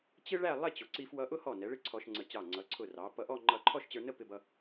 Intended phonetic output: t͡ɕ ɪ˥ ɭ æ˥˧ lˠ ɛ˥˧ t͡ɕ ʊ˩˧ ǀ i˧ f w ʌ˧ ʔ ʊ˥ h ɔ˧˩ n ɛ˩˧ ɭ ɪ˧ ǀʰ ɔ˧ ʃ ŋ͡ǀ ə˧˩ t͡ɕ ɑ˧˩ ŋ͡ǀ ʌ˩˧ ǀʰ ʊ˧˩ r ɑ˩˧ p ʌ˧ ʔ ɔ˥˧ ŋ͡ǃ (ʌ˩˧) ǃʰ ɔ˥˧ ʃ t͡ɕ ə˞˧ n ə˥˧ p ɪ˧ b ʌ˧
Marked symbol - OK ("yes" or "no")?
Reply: no